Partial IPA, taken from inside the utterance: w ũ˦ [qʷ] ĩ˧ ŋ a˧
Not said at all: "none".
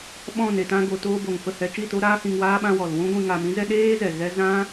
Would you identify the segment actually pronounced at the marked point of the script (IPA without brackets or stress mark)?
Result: ɡʷ